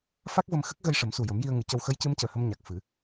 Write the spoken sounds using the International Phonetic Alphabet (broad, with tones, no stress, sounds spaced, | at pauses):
f a˦˥ k̚ v ə˧ m x ə˦˥ k̚ ɣ ə˧ j ʂ ə˨˩˦ m s u˨˩ j ə˨˩˦ m j i˧ ə̯ ŋ ɨ˨˩˦ c ə˧ w x ə˧˥ j c ɨ˧˥ m c əː˨˩ h ə˧ m ɲ a˨˩ k̚ f ɨ˨˩˦